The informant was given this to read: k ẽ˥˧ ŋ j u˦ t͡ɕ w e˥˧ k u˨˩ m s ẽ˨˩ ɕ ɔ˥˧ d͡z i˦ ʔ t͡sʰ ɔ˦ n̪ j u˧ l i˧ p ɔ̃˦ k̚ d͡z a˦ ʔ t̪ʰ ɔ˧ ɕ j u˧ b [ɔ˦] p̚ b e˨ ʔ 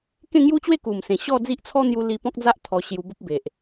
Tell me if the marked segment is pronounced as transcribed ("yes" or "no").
no